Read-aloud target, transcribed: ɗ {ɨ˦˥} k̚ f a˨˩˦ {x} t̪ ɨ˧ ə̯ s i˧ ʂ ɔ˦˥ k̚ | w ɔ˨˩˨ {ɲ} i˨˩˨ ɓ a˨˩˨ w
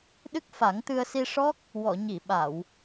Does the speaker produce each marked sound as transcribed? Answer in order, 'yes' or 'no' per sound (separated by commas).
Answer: yes, no, yes